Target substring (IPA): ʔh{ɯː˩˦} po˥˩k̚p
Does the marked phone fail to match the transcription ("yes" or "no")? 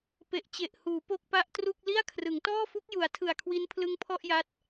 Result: yes